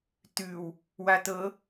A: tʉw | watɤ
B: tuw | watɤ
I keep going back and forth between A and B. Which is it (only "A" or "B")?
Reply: A